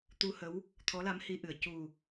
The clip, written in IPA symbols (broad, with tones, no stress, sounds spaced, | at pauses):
t̪ u˧ h ə˧˥ w | t̪ʰ ɔ˧˥ l a˧˥ m h i˧ ʔ ɨ˨˩ ə̯ c u˨˩